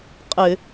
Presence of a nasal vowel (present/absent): absent